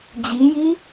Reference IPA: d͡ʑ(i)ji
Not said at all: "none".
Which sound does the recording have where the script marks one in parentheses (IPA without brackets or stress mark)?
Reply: i